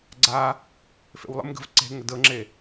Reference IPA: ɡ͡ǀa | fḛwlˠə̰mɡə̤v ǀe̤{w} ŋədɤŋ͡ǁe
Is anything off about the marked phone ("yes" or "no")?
yes